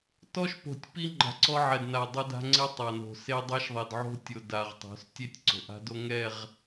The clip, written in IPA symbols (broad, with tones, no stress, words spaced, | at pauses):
tɔ˦ʃpo̤˨tʲpi˦ ŋ͡ǃa̤˨ǀɔ˦ʕɛ˨d na˨ dˤɛ˦da̤˦ ŋ͡ǀɪ˦ tˤa˨no̤˨ se˦ dˤa˦ʃðˤe˨dʕo̤˦ tʲo˨ da˨ʁ tˤo̤˨˦stʲe˦tʲ ǀo̤˨ʔa̤˦do˦ ŋɛ˦˨ʁ